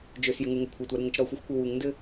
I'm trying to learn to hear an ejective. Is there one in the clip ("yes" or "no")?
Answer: no